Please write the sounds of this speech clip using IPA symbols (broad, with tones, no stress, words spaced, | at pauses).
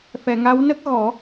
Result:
fɛ˨˩˨ŋa˧˥w nə˦˥k̚ɣɔ˨˩˦